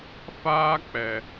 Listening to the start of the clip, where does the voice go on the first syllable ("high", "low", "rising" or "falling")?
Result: high